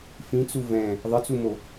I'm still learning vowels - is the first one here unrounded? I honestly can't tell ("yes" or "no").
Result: yes